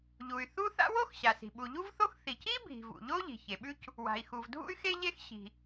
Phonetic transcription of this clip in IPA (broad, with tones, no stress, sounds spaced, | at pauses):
ʎ u˩ y̯ θ u˥ θ a̰˥ w o˥ x ɕ a˩ s i̤˩ ɓ u˩ ʎ u˥ v θ o˥ x θ i˩ c i˥ bʱ i̤˩ v ṵ˩ ʎ o˥ ʎ i̤˩ ç e˩ ɓ ʉ˥ c | w a̤˩ i̯ x u˩ v dʱ ṵ˥ y̯ x e˥ ʎ e˥ x ɕ i̤˩